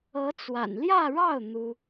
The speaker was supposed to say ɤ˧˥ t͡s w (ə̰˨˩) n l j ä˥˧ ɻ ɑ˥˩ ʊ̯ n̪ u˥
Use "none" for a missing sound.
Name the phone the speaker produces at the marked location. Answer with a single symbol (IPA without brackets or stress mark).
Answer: a̰˨˩